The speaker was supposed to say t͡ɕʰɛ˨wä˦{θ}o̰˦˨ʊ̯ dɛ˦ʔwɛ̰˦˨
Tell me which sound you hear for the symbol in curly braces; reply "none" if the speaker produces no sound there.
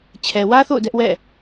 θ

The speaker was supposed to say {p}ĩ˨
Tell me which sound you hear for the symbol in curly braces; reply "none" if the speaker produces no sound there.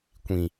kʷ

